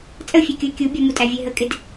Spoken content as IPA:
t͡sʼ ə fʲ ɛ kʲ ʊ ɪ̯ kʲ u bʲ ʌ m u tʼ æ vʲ ɛ ɦ ə kʼ ɪ d

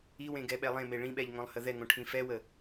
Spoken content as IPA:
i w ẽ ɡ ɛ ɓ ɛ lˠ ẽ m e ɭ ĩ ɓ ɛ ʎ ŋ õ lˠ h ə ð ɛ ŋ õ ʈʰ ĩ f ɛ w ə

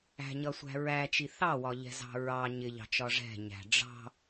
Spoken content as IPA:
æ̤ ɲ ʌ sʷ æ̤ ɹ æ t͡ʃ i θ ɑ w ɒ ʎ ɛ̤ z ɑ̤ ɹ ɑ ɲ ɪ ʎ ɑ̤ t͡ʃ ɒ ʐ ɛ̤ ɲ æ̤ ɖ͡ʐ ɑ̤

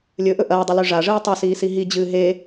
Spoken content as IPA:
lʲ ɵ ʔ ɵ ʔ ɐː dˤ ɐ l ʉ ʐ a ʐ ɨː tˤ ɐ s iː s i ɦ i d͡ʑ ɨː ɦ e

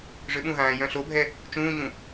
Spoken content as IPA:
ʐ ø ɓ ũ ɦ ãː j œ̃ ɬ o bʱ ɛ | t͡ʃ ũː ɲ ũ

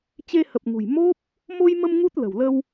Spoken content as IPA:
t͡ɕ e˧ h ə˨˩ p̚ ŋ ṳ˨˩ j m o˦˥ p̚ | m o˧ j m ə˧ m ŋ u˦˥ t̚ l ə̤˨˩ w l ə˧ w

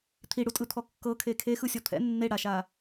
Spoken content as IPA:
t̪ʰ i ɽ u tʼ ɯ t̪ʰ ɔ kː ɤ kʰ e kʰ e x ɯ sʲ ɔ t̪ʰ ɛ̰ nː e ɽ a ʃ a

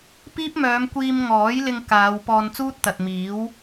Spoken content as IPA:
p iː˥ p̚ m œː˨˧ m kʷ iː˧ m ŋ ɔː˨˥ j l ɪ˧ ŋ k aː˨˧ w p ɔː˧ n t͡s uː˥ t̚ t̪ ɐ˨ t̚ m iː˨˥ w

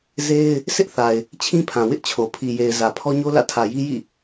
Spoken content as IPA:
z e˦ ɪ̯ | s ɪ˦ ʔ θ a˨ ɪ̯ | t͡ɕʰ ĩ˦ pʰ ã˨ w ɪ˦ ʔ t͡ɕʰ o˨ pʰ i˨ j e˨ ɪ̯ z ä˨ pʰ ɔ˦ ɲ o˦ l ä̰˦˨ tʰ ä˨ j i˦ j ḭ˦˨

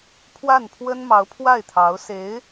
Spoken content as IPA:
pʰ w a˥˩ n pʰ w ə˥ n m ɑ˧˥ ʊ̯ pʰ w a˥˩ ɪ̯ t̪ʰ ɑ˧˥ ʊ̯ s e˧˥ ɪ̯

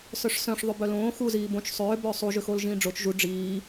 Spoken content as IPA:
s œ ʂ s œ̃ ʂ ðˤ ʏ b œ l õː x u z iː b õ t͡ʃ sˤ ʏː b ʏː sˤ u ʒ ʏ x o l ʒ ĩː ɖ͡ʐ o t͡ʃ ʒ u ɖ͡ʐ iː

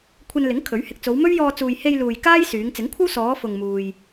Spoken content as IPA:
kʷʰ ɐ˧ n l ɪ˨˥ ŋ kʰ ɵ˨˥ ɥ h ɪ˧ k̚ t͡s o˨˧ w m ɵ˥ ɥ j ɔː˧ t͡s uː˨ j h e˧ j l uː˨ j k aː˥ j s yː˨˧ ŋ t͡s ɪ˨˥ ŋ kʷʰ ɐ˥ w s ɔː˨˧ f ʊ˨ ŋ m uː˧ j

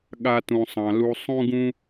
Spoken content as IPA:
ɠ a˧ t ũ˨ sˤ ɑ̃˨ l u˧ sˤ ũ˦ ɡ ũ˦

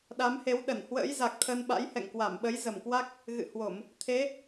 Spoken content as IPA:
ɗ a˨˦ m h e˨˦ w ɗ ə˧˩ n h w ə̰ː˧˥ j z a˨˩ k̚ t̪ʰ ə˧ n ɓ a̰˧˥ j h ɛ̰˧˨ ŋ k w a˧˩ m ɓ ə˨˦ j z ə˨˩ m k w a˦˥ k̚ | ɣ ɨ̰˧˨ h w o˧˩˨ m | t̪ʰ e˨˦

